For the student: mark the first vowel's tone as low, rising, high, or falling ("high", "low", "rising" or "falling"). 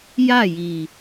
falling